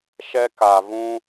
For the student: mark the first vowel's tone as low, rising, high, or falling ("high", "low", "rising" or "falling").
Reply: high